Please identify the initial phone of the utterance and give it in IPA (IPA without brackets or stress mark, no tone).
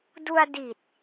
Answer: d